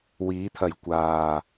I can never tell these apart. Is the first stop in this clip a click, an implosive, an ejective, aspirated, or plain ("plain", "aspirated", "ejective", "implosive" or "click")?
aspirated